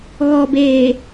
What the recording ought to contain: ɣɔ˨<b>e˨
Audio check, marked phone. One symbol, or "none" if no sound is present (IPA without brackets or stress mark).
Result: b